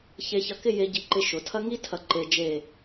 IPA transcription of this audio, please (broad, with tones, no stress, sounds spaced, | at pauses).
ç e˧ ç ɐ˧ k ɪ˥˧ j e˧ ɟ i˧ ǃ ɪ˧ ʃ ʊ˩˧ tʰ ɐ˥ ŋ i˥ tʰ ɐ˧˩ ǃ e˧ d͡ʒ e˧˩